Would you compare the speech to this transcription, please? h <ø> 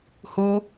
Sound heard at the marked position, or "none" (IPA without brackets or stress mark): u